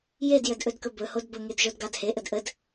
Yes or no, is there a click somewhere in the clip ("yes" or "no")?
no